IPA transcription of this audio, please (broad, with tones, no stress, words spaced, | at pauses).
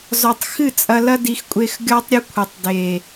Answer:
zɔ˨tˤ xɨ˦˨t͡sʼɐ˧lɐ˦ di˧x kʷʼe˧x ɡʲɔ˦tˤɾʲɘ˦ kʷʰɘ˨tˤde˨